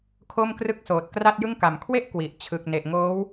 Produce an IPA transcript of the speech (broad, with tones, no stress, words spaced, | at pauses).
kʰo˥˩mkrɯ˥˩k̚soː˨˩t̚ kra˥˩t̚jɯ˥˩ŋka˨˩m kʰwe˥˩ʔ kwi˨˩ʔ t͡ɕʰɯ˨˩k̚ne˨˩ʔŋoː˦˥w